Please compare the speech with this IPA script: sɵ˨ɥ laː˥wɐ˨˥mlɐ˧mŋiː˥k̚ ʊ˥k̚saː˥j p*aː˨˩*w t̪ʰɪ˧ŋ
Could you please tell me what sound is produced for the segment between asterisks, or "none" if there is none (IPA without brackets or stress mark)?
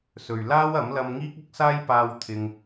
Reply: aː˧